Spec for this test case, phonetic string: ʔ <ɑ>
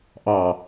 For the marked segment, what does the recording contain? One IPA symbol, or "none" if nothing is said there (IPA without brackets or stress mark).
ɑ